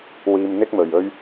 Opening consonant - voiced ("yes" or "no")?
yes